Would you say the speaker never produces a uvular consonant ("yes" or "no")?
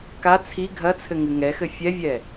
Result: yes